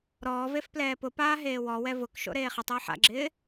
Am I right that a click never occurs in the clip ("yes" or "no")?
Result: no